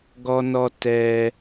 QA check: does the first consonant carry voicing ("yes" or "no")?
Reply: yes